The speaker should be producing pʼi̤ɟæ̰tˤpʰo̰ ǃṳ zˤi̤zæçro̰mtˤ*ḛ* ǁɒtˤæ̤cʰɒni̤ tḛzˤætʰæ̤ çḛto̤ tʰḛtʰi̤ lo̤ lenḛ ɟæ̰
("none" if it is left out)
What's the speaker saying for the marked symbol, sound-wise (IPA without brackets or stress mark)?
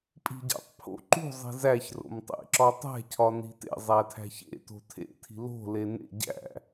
ḛ